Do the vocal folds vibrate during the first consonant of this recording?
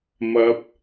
yes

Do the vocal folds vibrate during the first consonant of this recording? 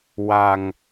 yes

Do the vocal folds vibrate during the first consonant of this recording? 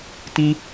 no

